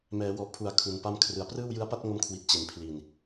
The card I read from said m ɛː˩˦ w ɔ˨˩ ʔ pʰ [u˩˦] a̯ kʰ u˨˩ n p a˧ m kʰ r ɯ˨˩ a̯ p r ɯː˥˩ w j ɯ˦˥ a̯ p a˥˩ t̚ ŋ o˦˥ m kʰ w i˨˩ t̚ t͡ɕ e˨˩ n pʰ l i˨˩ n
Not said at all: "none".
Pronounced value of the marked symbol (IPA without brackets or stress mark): u˩˦